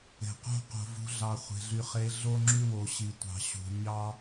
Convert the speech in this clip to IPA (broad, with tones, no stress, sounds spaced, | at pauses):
e̤˨ q o̤˦ q o̤˨ v ṳ˨˦ ɮ ɑ˨ χʷ e̤˨ ɮ y˨ χ e˨˦ ɮ o˦ ŋ͡ǁ y˦ w o˨ ɕ i˨ tʷ ɑ̤˨ ɕ ṳ˨ ɲ ɑ˦